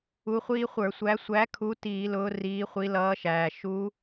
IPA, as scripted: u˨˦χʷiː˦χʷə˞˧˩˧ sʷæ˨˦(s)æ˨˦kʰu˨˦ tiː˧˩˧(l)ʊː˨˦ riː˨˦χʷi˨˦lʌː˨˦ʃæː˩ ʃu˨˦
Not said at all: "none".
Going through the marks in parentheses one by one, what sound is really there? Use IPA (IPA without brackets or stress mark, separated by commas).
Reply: sʷ, l